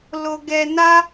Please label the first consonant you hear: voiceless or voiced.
voiced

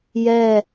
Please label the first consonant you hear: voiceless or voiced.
voiced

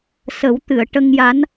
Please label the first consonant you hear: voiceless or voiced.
voiceless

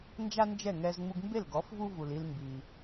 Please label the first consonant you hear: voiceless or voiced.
voiced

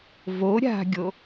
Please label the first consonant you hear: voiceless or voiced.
voiced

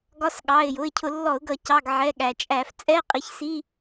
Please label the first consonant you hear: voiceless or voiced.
voiced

